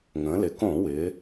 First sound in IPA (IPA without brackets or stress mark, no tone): ŋ